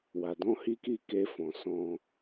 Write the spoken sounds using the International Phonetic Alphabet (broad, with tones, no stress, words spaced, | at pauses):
wa˨dɔ̃˧hi˦ki˦˨ ke˧fɔ̃˨ sɔ̃˧